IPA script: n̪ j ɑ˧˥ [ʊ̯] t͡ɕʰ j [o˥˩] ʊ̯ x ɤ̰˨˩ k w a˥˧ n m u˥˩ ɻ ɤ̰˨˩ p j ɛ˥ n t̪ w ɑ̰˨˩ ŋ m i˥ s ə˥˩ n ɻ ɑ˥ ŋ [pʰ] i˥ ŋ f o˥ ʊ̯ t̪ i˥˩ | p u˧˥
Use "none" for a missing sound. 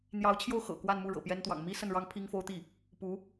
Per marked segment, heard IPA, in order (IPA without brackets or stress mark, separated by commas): ʊ̯, o˥˩, pʰ